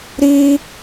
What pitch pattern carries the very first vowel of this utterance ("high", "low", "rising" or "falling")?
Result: high